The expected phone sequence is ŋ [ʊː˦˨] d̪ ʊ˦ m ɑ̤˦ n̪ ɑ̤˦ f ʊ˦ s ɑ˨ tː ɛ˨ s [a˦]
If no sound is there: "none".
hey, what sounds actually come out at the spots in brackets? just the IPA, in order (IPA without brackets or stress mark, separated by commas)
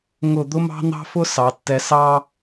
ʊ˦˨, ɑ˦